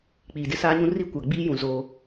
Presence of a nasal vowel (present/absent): present